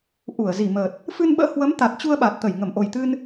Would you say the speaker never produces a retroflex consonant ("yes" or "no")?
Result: yes